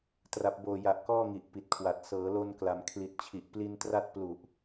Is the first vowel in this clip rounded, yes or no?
no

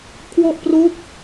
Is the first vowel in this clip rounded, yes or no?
yes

